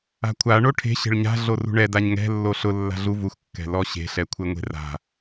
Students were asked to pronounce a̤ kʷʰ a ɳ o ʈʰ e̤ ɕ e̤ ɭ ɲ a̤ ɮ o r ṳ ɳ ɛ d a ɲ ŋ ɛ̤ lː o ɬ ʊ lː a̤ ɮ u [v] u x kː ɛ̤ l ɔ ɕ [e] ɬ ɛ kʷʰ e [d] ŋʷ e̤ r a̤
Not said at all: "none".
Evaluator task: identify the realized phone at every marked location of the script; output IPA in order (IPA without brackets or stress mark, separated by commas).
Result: v, e̤, none